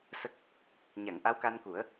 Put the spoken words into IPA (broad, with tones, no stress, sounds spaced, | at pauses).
s ə˦˥ k̚ | ɲ a˨˩˨ ŋ ʔ a˧˥ w k a˧ n k u˨˩˦ ə̯